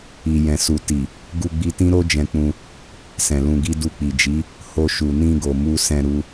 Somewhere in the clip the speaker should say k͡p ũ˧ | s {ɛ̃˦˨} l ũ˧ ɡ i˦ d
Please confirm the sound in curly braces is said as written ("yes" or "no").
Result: no